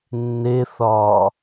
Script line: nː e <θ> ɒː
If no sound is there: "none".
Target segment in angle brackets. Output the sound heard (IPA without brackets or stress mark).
θ